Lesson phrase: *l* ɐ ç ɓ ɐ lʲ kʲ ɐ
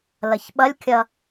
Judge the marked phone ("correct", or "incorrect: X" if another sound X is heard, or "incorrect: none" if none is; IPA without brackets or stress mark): correct